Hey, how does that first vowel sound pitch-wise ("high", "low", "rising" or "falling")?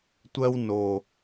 high